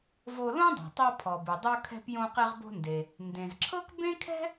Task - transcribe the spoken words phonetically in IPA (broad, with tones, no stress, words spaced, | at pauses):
vo˧lõ˥dˤo̤˩ tˤɤ˧pʰɔ˩bɯ˩dˤo˧ kʰɛ̤˧pjõ˧ qɛ˧ʁbo̤˧nde˩ | ndẽ˩zǁʰɤ˥k bẽ˥kʰɛ̤˥